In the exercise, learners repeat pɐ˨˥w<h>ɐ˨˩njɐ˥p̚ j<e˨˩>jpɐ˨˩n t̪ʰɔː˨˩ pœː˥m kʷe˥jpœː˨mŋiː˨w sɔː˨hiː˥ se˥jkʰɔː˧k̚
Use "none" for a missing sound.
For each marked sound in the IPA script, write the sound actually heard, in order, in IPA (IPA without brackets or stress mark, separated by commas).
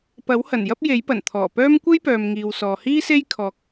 h, e˨˥